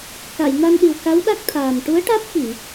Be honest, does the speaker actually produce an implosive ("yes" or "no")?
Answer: yes